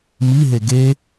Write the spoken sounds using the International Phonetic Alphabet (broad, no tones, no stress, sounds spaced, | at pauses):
m i ɦ e ɡ e